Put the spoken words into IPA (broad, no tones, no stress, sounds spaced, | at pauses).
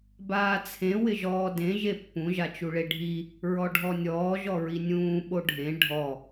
b aː t͡sʰ ẽ w ɪ ʒ ɔː d ẽ ʒ e pː ũ ʒ a t͡ʃ u ɭ e ɖʱ i | ɹ ɔ ɖʱ ɔ nʲ ɔː ʒ ɔ ɹ i nʲ ũː ɓ o ɖʱ ẽ ɖʱ ɔ